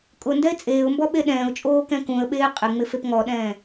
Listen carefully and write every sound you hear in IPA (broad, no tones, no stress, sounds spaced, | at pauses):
kʼ ʊ n d ɛ ɪ̯ t͡sʼ eː ʊ̯ m b ɔ ɓ e ɗ ɛ̃ː ʊ̯ t͡ʃʼ oː k ɛ̃ k ũ ə̯ ɓ eː qʼ e ŋ͡m ɪ f e p ŋ ɔ ɗ ɛ̃ː